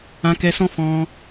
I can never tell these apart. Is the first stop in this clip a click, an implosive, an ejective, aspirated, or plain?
plain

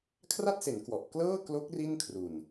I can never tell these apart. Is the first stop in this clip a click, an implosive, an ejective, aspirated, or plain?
aspirated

